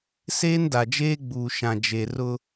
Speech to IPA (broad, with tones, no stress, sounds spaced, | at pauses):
s eː˦ n d a˨ d͡ʒ eː˦ ɡ͡b uː˨ ʃ ã˨ d͡ʒ e˨ r ʊ˦